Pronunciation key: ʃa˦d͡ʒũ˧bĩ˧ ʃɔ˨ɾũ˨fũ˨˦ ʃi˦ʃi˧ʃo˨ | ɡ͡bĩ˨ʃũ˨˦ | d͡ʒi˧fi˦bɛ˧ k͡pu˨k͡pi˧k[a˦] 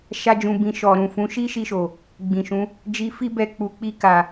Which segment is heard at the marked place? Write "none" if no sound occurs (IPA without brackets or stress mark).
a˨